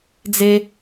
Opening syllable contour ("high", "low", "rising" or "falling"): high